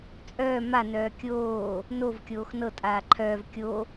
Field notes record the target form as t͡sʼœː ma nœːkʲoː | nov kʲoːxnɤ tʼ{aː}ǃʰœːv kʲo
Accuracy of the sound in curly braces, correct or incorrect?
correct